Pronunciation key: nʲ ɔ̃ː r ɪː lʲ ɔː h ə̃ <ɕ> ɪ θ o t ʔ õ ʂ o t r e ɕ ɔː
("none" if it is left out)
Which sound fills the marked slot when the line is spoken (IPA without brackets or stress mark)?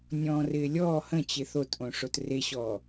t͡ɕ